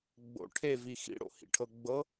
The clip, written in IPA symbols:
ɡ͡b o̰ ʈʰ e v i x ḭ ɽ o̰ h ḭ ʈʰ ɤ ɡ͡b ɤ

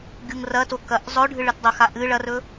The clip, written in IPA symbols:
ɡʲ u ŋ r ɐ t o k ɐ ʔ zˤ ɵ ɖʱ ɨ ɭ ɨ t dˤ ɐ x a ʔ ɨ ɭ ɐ r ɵ

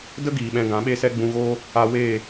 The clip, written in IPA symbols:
d ə˦ ɡ iː˨ ɓ ɛ̃˧ ɡ ã˨˦ ɓ e˦ s ɛ˦ ɡ͡b ũ˧ ɣ oː˦ | a˧ w eː˦˨

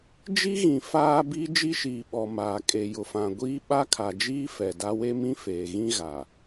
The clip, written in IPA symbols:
d͡ʒ i˦ ɣ ĩ˨ f aː˦ b i˦ d͡ʒ i˦ ʃ iː˨ ɓ ɔ˨ m aː˨ kʼ e˨ j ʊ˨ f ã˨ ɡʷ iː˦ ɓ a˦ kʰ a˨ d͡ʒ iː˦ f ɛ˨ d a˦ w e˦ m ĩ˦ f eː˨ ɣ ĩ˦ ɣ a˨

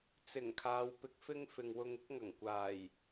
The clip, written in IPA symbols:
t͡s ɪ˨˩ ŋ kʰ aː˨˧ w p ɪ˧ k̚ f ɪ˥ ŋ f ɪ˨ ŋ w ʊ˧ ŋ ɪ˥ k̚ ŋ ɐ˨˩ ŋ kʷ aː˨˩ j

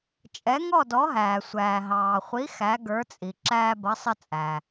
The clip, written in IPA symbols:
t͡ʃʼ ɛ˨˥ ŋ ɔ˥˨ d ɔ˨˥ ɦ æː˩ sʷ æː˩ ɦ ɑː˩ χʷ i˨˥ x æ˨˥ ɡ ə˞˨˥ t͡sʼ i˩ ǁ æː˦ b ʌ˨˥ sˤ ə˦ t͡sʼ æː˩

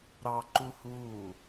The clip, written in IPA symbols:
ɾ ɑ ǃ u h uː

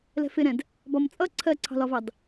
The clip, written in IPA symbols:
l ɛ̤ f ɪ ɾ ɛ̃ d | b ɒ m t͡sʼ ʌ ǀʰ ɜ ǀʰ ɑ̤ l ɒ v ɑ d

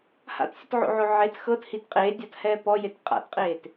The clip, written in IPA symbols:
h a̰ t sʲ ɯ t ʕ o̰ ʕ o ʕ e t x ɤ t h i t qʼ eː dʲ a t h ɛː p ɔ j e t qʼ a̰ t qʼ eː t

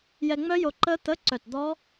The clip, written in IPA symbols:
j ɛ˧ ŋ͡m œ˦˥ j o˧ ǃ ə˦˥ t̪ ə˧˥˧ ǀ œ˧˩ t d̪ ɔ˦˥

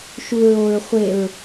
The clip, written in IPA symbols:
ʃ u ɹ o ɹ χʷ e ɹ

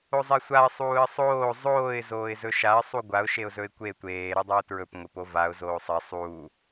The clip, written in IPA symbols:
o zˤ e sʷ a ɪ̯ sˤ uː ɪ̯ sˤ oː zˤ oː ɪ̯ z oː ɪ̯ z ɵ ʃ a ɪ̯ sˤ u ɡʷ a ʊ̯ ʃ e ʊ̯ z ɵ ɪ̯ kʷ e tʷ eː ɾ u dˤ a ʊ̯ t ɹ ɵ p ŋʷ e p o v a ʊ̯ z oː sˤ e sˤ uː

